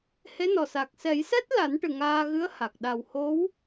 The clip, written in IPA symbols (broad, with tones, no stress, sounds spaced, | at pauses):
h e˧˥ n ɔ˨˩ s a˨˩ k̚ s ɛ˨˩˦ j s ɛ˦˥ t̚ l a˨˩˦ n ʈ ɨ˨˩ ŋ aː˧ ɣ ɨ˧˥ ə̯ h a˨˩ k̚ ɗ a˨˩ w h o˧˥ w